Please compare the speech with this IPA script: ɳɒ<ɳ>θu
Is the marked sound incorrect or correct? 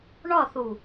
incorrect: none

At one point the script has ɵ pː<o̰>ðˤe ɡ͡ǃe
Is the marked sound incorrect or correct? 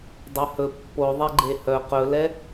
incorrect: o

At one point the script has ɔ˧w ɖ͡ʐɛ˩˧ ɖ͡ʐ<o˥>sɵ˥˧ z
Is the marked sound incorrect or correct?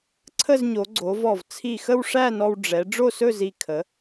incorrect: o˥˧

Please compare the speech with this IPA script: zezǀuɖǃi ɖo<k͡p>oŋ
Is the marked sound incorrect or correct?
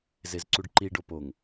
incorrect: p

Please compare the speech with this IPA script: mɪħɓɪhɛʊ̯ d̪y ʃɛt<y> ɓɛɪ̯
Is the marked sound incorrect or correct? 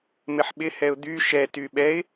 correct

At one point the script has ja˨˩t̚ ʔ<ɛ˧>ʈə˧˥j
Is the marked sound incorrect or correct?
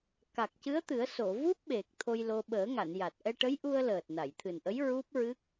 correct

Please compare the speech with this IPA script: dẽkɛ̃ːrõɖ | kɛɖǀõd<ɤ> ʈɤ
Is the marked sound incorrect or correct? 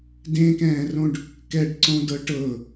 correct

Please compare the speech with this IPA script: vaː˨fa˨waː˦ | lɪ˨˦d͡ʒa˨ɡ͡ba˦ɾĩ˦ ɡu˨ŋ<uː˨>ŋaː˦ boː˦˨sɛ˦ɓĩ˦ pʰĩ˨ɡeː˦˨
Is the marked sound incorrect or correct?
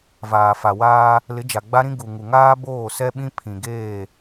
incorrect: u˨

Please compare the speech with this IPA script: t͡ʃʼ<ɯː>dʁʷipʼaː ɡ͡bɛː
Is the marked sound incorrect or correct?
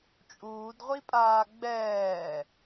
incorrect: uː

